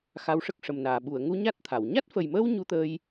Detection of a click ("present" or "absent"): absent